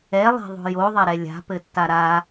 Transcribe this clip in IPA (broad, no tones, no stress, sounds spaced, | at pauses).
ɛ lˠ ɛ̤ ðˤ o̤ j o ðˤ ɐ ɾ ɛ lʲ a̤ p ɘ tː a ɾ a